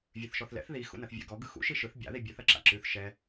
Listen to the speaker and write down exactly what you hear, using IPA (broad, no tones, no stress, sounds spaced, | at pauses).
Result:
vʲ ʉ θ ʃ ɔ θ l ɛ̰ θ ð i x ṵ n ɐ θ vʲ ɛ̰ ɡ ɔ ɡ ɯ x ṵ ʃ i ʃ ɯ θ bʲ a̰ ð i bʲ ʉ θ ɐ ǁ a̰ ǁ ʉ θ ʃ ɛ